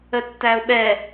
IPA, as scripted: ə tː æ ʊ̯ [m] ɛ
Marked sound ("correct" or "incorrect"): incorrect